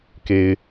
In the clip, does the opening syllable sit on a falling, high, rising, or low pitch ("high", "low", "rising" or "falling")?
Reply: low